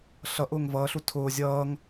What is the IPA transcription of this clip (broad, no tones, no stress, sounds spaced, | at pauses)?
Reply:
ɬ ʌ ʔ ʊː ŋ v ʌː ɬ u tʰ ʊː zʲ ʌː ŋ